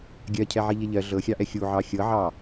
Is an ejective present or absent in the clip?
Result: absent